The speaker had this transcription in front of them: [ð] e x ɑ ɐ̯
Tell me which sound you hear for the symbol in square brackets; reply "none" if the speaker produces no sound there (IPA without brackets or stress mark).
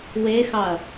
w